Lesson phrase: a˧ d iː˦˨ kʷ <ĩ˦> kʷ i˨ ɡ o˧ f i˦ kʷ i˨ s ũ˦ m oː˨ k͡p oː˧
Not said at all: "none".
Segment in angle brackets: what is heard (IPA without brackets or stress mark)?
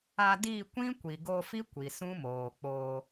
ĩ˦